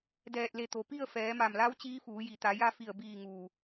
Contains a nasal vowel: no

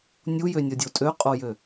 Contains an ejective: yes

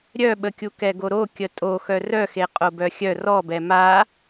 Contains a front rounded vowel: yes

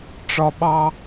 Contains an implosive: yes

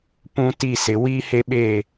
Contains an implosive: yes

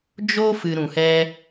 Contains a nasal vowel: yes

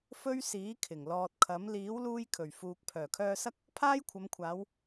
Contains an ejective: no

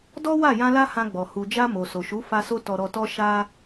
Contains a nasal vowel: yes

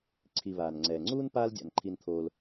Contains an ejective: no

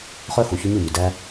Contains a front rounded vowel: yes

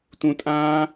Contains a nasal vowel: yes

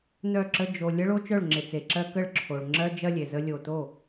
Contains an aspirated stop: yes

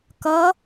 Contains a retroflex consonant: no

